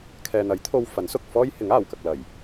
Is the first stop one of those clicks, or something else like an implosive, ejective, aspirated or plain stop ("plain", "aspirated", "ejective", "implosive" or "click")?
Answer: aspirated